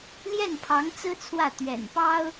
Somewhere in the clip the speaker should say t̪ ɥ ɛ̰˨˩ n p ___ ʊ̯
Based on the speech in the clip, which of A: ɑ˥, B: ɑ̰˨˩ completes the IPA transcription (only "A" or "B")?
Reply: A